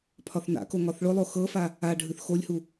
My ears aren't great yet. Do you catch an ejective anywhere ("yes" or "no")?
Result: no